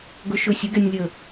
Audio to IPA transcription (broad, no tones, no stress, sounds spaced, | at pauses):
ɡ ɵ ʃ ɵ sʲ ɵ ɡ ɛ nʲ lʲ ə